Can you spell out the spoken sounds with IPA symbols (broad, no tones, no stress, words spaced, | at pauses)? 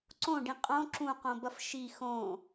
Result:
ǀõɖĩ qʼõ ǁũqõbɐf ʃi xõ